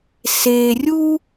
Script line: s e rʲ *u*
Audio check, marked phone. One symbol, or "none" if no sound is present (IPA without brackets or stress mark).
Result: u